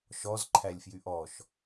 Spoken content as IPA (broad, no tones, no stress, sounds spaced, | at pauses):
ʃ ɔ z ǃʰ æ lʲ f j y ʔ ɔ ʃ